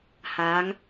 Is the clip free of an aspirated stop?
yes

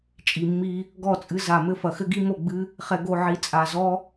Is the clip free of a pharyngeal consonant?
no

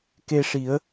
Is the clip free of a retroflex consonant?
no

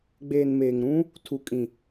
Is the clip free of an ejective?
no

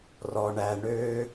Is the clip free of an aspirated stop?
yes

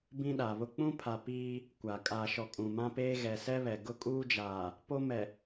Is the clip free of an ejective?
no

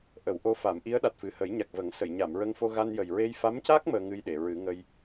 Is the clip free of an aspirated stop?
yes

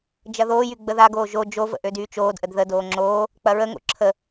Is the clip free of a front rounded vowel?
no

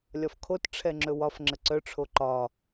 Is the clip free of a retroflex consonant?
no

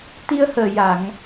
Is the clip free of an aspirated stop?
yes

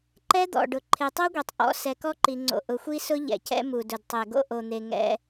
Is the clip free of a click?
no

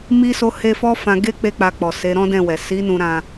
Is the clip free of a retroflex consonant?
yes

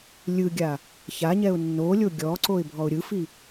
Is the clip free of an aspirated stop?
yes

